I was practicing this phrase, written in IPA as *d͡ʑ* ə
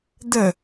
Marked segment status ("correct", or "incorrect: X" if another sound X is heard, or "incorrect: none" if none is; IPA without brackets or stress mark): incorrect: d̪